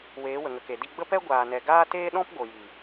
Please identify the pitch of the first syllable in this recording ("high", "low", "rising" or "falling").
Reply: rising